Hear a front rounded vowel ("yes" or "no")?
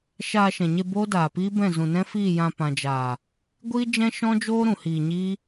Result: no